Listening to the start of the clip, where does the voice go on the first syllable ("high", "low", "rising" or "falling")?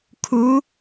rising